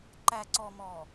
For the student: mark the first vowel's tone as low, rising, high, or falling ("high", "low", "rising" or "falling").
low